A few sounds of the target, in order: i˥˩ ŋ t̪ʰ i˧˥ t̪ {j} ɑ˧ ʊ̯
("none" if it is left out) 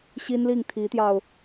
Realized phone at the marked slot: j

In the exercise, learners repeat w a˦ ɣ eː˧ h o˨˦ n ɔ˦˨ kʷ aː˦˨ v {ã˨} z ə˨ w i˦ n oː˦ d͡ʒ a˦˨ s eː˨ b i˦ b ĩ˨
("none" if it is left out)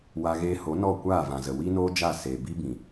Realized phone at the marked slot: ã˨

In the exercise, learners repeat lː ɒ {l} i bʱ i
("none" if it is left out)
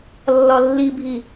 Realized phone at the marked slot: lː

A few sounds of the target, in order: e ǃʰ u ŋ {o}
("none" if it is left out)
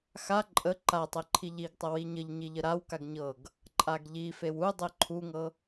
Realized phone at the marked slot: ɤ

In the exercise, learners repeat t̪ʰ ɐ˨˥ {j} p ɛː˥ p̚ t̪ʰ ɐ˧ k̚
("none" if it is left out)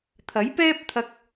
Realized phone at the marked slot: j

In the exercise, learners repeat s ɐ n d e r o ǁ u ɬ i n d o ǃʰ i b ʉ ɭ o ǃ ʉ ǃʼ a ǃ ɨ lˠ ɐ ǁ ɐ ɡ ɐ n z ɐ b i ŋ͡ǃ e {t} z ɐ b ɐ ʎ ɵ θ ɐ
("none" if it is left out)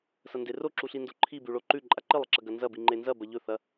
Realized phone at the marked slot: n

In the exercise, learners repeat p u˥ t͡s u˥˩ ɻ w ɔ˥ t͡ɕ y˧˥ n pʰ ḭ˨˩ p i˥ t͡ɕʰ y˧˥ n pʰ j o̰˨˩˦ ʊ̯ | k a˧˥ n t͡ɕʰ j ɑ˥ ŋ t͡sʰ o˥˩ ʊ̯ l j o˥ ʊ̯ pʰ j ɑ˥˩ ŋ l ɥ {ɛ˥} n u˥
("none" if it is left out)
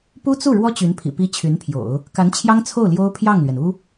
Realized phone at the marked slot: ɛ˩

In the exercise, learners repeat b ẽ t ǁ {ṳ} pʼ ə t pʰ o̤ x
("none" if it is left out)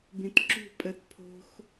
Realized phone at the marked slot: ṳ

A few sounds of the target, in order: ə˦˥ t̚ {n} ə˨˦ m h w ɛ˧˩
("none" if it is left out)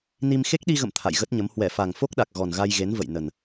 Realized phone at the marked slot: ɲ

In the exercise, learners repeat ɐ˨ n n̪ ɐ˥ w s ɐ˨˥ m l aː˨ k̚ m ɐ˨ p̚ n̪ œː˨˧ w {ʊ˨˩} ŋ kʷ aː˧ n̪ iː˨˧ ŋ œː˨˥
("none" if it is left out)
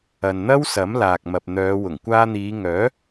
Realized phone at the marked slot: ʊ˨˩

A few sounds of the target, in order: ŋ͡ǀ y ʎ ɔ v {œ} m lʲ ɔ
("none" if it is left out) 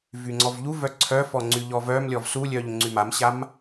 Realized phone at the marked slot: œ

